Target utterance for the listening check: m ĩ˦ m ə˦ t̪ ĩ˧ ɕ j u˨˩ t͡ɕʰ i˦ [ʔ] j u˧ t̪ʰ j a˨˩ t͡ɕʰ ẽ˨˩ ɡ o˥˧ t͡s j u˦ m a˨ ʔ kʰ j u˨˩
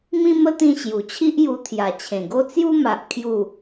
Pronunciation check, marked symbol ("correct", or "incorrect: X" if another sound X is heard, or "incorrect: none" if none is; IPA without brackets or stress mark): correct